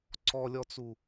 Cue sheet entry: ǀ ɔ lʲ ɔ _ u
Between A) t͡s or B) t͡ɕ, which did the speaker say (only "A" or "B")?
A